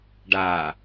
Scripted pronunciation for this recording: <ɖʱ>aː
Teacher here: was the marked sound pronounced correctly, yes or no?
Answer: no